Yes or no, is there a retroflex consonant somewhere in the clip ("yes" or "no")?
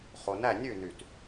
no